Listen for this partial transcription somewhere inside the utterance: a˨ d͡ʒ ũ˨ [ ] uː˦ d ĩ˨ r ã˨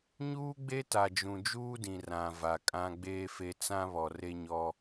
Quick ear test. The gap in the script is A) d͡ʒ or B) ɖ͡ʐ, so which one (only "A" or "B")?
A